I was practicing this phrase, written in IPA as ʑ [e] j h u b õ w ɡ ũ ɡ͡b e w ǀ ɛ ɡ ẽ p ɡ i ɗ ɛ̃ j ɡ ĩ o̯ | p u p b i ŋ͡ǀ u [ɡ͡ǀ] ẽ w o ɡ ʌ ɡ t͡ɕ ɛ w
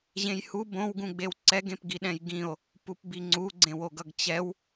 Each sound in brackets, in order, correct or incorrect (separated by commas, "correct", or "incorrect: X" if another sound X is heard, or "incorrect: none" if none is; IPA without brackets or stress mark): incorrect: ẽ, correct